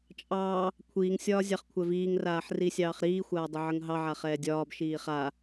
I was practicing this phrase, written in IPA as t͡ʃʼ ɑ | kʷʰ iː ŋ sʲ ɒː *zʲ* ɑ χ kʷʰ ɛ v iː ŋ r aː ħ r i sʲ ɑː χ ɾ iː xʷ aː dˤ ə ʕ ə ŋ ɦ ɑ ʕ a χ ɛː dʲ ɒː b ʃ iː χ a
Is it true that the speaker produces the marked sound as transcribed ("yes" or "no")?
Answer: yes